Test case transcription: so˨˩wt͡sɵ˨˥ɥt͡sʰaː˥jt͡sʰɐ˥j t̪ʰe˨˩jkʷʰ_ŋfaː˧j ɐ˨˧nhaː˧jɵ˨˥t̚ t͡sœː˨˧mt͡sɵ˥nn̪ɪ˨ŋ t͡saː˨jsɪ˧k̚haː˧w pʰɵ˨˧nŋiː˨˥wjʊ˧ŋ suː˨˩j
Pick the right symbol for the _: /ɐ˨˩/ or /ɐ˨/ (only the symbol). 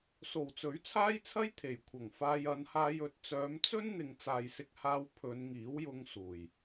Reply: ɐ˨˩